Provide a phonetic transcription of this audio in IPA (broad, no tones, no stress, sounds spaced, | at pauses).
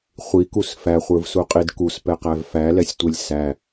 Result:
χʷ i k u s f æ χʷ ə˞ v s u qʼ i d k u s p ɛ q æ v f æ l ɛ sʲ tʷ e lʲ s æ